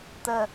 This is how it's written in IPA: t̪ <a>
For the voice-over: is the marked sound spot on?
no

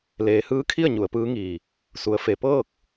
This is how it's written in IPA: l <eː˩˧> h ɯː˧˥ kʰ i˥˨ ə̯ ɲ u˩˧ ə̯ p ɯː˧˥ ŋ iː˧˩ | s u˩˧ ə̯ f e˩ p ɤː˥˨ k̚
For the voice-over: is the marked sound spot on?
yes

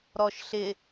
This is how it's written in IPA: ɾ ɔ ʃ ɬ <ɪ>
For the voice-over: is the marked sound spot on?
yes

